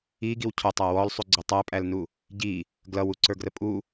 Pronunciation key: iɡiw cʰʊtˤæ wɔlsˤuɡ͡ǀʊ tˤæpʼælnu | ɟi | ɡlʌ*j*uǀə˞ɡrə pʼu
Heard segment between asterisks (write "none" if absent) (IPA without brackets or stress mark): w